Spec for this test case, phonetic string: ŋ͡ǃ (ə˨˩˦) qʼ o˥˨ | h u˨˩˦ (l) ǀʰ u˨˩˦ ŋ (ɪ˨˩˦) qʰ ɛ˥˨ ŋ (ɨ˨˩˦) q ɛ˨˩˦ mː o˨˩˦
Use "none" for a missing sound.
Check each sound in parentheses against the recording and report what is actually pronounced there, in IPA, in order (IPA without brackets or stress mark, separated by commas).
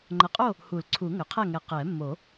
ə˨˩˦, l, ʏ˨˩˦, ɛ˨˩˦